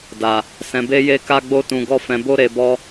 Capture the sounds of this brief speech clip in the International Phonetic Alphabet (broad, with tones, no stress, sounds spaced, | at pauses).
d a˨ | s ɛ̃˨ b e˧ j e˧ k a˧ ɡ͡b o˧ t ũ˨ ɡ ɔ˧ f ɛ̃˨ b o˧ ɾ e˨ b ɔ˧